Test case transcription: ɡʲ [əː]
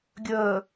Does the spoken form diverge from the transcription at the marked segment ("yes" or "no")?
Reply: no